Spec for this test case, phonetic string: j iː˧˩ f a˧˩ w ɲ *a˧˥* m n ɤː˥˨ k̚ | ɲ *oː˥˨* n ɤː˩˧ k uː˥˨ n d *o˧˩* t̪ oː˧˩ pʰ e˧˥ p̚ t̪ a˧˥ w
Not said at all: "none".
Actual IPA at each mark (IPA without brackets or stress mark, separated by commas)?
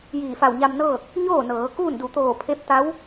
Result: a˧, oː˥˨, u˧˩